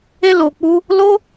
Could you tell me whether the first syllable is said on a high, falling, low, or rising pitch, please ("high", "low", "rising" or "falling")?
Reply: high